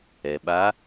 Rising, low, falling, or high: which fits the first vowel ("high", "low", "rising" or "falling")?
low